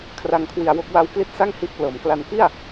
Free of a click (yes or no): yes